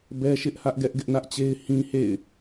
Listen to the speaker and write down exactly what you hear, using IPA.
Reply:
b ɛ˦ ʃ ɪ˦ ʔ h ä˦ ʔ ɡ ɛ˦ ʔ ɡ ɪ˦ ʔ n ä˦ ʔ t͡ɕ e˦ ɪ̯ h ĩ˦ h ḛ˦˨ ɪ̯

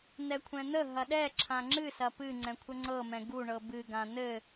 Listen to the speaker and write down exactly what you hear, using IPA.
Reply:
n̪ ɛ kʷʰ ɛ̃ n̪ ə ɦ ɐ ɗ ɛ ǁʰ ã ŋ͡ǁ ɨ s ɐ p ɨ ŋ͡ǀ ɛ̃ kʷʰ ə ŋ͡ǀ ɤ m ɛ̃ ɡ u ɳ ɤ b ɨ ɡ ã n̪ ɘ

